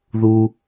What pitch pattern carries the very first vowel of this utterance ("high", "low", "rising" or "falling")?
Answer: low